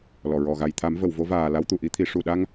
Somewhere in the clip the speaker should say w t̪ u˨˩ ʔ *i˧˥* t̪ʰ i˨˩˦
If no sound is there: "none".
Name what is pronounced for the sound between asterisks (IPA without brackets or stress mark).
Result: i˧˥